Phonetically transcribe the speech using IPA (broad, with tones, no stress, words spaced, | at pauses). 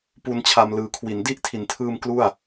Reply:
pu˧nt͡ɕʰa˧m lɯː˨˩kʰwi˩˦n di˦˥ʔtʰi˩˦ntʰɯː˧m klu˥˩a̯